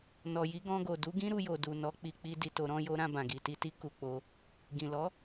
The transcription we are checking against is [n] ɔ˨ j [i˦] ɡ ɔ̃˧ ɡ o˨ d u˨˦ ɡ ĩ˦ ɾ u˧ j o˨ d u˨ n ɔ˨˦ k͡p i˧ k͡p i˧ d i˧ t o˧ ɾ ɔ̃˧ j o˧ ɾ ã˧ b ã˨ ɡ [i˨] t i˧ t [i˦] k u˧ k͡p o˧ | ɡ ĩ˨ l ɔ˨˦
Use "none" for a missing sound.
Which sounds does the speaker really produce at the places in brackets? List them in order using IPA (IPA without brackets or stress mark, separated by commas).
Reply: n, i˨˦, i˨, i˦